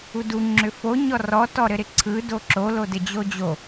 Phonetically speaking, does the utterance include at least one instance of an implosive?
no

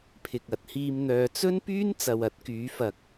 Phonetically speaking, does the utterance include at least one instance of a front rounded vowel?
yes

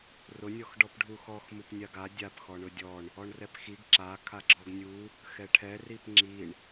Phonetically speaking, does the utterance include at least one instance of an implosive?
no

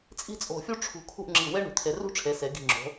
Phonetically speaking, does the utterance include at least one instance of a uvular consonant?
no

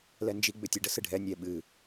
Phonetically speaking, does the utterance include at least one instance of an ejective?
no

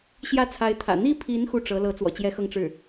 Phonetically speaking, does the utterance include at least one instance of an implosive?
no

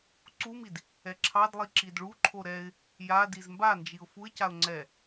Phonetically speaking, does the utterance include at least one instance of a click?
yes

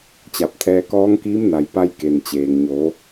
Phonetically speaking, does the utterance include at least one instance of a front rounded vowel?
no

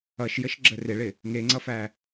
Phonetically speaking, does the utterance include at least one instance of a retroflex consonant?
yes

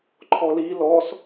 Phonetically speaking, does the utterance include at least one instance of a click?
yes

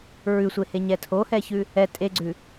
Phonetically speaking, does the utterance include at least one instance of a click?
yes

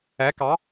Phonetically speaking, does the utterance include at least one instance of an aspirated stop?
no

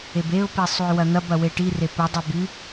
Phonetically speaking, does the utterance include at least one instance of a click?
no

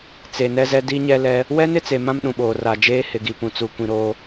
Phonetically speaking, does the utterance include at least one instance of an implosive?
yes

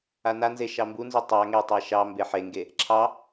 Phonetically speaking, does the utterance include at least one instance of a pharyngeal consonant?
yes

